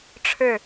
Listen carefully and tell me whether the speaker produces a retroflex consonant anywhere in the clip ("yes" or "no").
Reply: yes